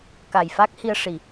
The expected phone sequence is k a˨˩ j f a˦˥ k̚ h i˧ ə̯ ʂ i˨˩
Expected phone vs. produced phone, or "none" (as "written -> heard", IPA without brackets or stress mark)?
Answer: none